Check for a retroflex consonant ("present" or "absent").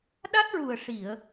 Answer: present